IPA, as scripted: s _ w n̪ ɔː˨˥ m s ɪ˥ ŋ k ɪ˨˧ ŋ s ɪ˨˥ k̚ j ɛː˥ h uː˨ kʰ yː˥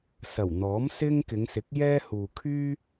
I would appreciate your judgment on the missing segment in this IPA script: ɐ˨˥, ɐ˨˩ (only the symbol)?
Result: ɐ˨˩